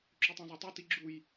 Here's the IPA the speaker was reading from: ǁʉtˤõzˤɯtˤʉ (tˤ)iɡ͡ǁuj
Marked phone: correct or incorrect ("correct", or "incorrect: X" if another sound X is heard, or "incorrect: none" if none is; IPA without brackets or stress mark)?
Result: incorrect: t